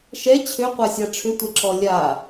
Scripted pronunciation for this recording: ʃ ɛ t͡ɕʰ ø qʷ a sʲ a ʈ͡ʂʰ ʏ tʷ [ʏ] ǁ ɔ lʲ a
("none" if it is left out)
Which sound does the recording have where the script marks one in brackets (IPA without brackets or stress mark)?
ɛ